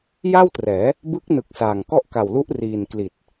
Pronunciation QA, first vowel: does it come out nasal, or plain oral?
oral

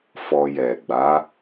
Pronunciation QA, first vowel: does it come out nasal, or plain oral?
oral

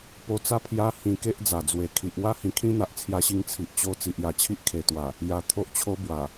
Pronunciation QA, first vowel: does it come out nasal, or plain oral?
oral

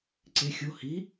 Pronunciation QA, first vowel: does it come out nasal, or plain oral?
oral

